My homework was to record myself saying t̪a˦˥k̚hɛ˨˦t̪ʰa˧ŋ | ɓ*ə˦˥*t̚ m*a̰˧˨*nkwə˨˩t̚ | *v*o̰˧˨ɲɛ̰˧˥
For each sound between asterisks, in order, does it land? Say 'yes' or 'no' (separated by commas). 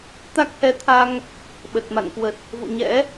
no, yes, yes